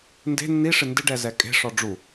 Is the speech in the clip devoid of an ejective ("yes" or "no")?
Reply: no